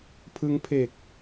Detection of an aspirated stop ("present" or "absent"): present